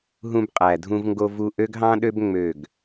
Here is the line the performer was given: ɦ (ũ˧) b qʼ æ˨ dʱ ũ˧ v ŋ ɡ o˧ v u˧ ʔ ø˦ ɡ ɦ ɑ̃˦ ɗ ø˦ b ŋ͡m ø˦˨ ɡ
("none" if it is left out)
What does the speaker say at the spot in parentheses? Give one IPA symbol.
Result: ũ˧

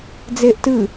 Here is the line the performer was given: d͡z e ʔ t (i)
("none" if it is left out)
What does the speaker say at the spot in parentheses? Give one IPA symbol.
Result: ɨ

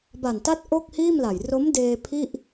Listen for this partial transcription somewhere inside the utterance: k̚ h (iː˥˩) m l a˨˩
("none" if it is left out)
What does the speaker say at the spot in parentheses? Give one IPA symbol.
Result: iː˥˩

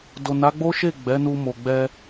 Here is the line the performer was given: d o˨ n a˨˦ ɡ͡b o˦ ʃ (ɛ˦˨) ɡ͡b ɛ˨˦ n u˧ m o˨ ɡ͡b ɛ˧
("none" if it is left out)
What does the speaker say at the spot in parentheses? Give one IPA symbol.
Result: e˦˨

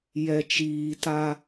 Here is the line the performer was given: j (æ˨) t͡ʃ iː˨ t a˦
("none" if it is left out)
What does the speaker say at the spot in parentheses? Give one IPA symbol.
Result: ɛ˨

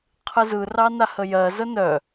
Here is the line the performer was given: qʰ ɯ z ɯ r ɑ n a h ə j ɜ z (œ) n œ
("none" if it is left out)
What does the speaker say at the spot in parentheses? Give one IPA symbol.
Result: ə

